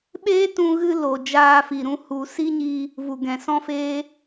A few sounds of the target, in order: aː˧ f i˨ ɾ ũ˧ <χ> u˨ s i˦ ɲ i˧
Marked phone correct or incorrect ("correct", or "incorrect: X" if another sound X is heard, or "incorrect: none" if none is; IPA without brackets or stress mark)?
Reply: incorrect: h